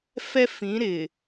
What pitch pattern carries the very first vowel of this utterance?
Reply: high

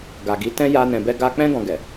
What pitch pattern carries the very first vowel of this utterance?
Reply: low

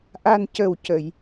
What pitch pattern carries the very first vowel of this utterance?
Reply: low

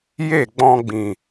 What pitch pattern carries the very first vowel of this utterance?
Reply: falling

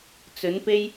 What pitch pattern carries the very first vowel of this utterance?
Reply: rising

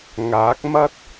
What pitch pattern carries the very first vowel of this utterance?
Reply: rising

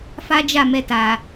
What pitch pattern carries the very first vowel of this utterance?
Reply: high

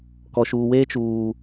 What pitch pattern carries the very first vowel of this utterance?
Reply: low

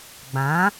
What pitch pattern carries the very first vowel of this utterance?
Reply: rising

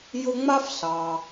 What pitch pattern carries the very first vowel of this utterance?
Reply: high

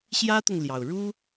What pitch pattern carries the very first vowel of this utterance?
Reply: high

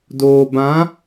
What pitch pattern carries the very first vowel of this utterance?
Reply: low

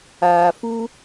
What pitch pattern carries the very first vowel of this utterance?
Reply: low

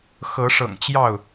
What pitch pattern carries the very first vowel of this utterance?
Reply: rising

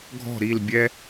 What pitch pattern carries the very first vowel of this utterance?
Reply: falling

